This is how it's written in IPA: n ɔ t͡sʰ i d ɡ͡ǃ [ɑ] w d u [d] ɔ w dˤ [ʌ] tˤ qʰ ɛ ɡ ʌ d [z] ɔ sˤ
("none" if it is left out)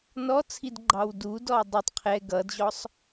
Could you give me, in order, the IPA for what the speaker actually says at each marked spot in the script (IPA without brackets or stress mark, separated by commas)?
ɑ, d, ʌ, ʑ